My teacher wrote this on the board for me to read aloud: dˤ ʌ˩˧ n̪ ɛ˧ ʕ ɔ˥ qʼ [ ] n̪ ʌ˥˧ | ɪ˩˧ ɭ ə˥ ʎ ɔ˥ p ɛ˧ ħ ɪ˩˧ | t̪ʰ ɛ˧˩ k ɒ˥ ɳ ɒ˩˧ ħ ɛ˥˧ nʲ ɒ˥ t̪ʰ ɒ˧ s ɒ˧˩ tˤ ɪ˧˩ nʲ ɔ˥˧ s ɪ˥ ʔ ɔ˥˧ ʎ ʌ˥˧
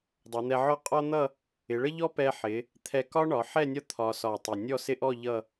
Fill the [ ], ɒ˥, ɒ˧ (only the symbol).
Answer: ɒ˥